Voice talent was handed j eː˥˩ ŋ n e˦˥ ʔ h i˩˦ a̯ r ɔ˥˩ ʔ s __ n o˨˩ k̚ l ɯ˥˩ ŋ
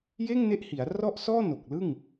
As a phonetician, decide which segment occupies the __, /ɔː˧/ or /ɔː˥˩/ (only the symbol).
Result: ɔː˥˩